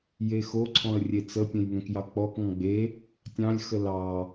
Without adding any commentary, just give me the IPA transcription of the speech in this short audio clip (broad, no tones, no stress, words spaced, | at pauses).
jexoǀʰɔ̃ə̯ rʲet͡səpʲẽj ŋɛ̃kjɑkk͡pɔkŋɔ̃ ɡ͡be | tʲɑ̃lʲxə lɑ